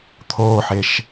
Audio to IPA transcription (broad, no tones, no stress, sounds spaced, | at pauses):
t̪ʰ oː ħ e ʃ